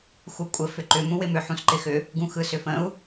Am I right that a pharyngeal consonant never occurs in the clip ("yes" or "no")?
no